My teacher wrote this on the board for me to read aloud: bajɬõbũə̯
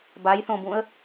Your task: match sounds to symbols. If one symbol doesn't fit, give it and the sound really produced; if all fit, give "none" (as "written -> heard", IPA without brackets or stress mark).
ɬ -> θ